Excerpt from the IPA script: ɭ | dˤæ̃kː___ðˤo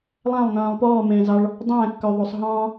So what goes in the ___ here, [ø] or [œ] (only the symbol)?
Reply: œ